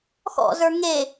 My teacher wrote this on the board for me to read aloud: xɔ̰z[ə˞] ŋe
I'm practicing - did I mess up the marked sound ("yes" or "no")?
no